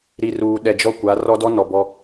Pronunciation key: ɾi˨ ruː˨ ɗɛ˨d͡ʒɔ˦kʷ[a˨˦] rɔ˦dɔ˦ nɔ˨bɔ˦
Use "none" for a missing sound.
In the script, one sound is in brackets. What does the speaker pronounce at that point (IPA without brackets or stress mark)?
a˨˦